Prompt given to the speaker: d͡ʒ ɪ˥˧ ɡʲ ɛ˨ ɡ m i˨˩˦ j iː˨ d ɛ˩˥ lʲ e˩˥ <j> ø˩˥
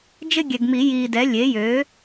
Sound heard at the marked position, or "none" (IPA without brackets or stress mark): j